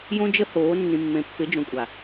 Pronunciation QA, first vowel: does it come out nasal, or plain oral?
nasal